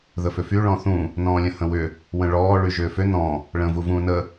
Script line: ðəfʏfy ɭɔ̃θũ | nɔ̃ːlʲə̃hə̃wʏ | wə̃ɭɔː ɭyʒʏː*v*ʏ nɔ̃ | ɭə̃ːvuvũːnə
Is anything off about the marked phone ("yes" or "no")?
yes